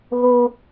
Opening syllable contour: high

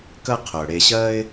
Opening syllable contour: high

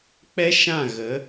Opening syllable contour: high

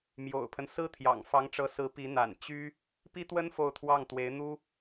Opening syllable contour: low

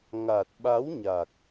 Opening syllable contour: low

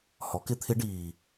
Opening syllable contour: rising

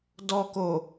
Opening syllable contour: low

